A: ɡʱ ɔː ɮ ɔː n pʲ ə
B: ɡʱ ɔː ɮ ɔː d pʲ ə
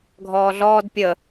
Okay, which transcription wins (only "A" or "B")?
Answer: B